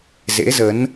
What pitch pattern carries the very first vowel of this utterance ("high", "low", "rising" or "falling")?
rising